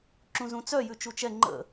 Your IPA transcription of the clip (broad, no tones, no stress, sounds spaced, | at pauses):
ǁ ũ z ũ t͡s œ j ʉ t͡ʃ u t͡ʃ ɛ ŋ͡ǃ ə̰